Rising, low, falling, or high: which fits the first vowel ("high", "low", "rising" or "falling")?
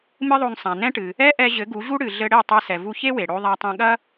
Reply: high